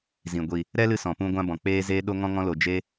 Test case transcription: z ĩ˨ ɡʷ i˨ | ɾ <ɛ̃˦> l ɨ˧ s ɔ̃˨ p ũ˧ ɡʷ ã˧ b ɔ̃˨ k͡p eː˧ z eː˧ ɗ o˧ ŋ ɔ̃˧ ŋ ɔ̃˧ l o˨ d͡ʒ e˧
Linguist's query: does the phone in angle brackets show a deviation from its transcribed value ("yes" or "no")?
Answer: yes